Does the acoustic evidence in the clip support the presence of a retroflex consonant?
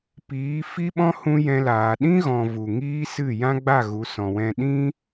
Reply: no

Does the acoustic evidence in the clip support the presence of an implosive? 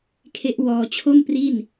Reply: no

